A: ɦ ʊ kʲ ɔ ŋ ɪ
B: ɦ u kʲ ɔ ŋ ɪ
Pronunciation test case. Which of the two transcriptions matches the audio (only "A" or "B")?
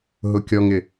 A